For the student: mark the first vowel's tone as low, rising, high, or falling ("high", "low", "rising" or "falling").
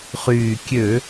low